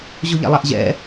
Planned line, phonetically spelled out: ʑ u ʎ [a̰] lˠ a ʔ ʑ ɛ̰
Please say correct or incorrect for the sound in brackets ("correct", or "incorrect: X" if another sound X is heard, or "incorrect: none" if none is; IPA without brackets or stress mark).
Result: correct